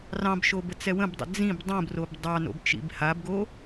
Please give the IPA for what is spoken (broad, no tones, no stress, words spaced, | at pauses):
rɑ̃bʃo bət͡sɛwə̃bdˤə̰ d͡zĩb dˤũbrob dˤɑno̰b t͡ʃḭbhabɡo